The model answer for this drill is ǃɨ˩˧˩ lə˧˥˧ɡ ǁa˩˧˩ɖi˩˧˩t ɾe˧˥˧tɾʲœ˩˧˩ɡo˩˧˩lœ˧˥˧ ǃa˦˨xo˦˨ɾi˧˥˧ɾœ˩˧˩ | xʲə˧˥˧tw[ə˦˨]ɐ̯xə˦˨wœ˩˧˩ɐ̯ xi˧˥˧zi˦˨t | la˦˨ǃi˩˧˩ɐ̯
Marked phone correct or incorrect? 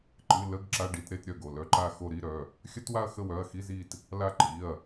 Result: incorrect